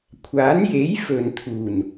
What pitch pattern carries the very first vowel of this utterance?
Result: rising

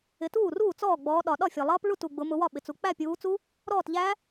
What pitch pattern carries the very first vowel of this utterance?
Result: rising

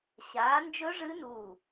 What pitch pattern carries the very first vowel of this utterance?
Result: rising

